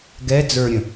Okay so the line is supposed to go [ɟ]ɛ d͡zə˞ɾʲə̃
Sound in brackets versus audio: incorrect: ɡ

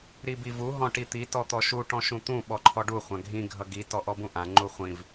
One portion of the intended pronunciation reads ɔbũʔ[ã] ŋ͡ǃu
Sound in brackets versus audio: correct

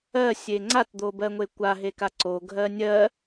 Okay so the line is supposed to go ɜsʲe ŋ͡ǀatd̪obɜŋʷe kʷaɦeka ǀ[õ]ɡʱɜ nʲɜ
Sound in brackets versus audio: incorrect: o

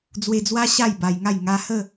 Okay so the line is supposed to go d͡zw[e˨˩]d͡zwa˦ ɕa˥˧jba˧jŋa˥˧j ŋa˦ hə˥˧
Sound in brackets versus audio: incorrect: e˧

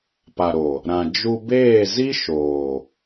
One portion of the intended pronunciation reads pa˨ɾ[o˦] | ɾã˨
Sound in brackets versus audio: incorrect: o˨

